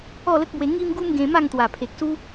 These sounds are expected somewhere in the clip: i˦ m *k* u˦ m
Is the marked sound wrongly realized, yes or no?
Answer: yes